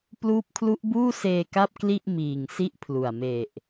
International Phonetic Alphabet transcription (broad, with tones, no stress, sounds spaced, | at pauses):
p l uː˦˥ p̚ kʰ l u˦˥ ʔ b uː˥˩ s eː˧ k a˥˩ p̚ k l i˥˩ ʔ m iː˨˩ ŋ s i˥˩ ʔ pʰ l u˨˩ a̯ m e˨˩ ʔ